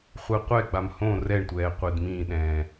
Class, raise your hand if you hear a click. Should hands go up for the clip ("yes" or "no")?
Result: no